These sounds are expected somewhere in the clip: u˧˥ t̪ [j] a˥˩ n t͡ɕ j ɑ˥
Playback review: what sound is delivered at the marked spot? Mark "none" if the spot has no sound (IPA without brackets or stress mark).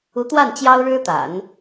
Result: w